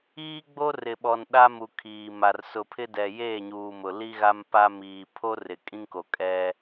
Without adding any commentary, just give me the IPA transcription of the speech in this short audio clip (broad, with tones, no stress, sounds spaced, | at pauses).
iː˦ ɡ͡b o˦ r ɪ˨ ɓ ɔ˨ n ɗ a˦ m u˨ kʰ iː˨ m a˨ r s ʊ˨ pʰ ɪ˦ d ɛ˨ j eː˦˨ ɲ uː˨ m ʊ˨ l i˦ ɣ a˦ m p a˦ m iː˨ pʰ o˦ r ɪ˨ kʼ ĩ˦ ŋ k o˨ kʼ ɛ˦